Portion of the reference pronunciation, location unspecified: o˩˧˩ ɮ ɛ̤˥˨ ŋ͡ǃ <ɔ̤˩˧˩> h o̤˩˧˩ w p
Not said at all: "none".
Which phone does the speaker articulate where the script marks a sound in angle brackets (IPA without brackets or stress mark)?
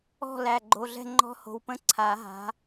ɔ̤˦˥